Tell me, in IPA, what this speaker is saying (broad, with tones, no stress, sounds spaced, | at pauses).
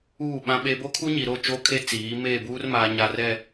uː˦˨ ɓ ã˦ ɓ e˦ b o˦ kʰ u˦ ɲ i˨ ɾ o˦˨ t͡ʃ oː˦ kʰ e˦ t͡s iː˨˦ m eː˦˨ b uː˦ r m aː˨ ɲ aː˨ r ɛ˨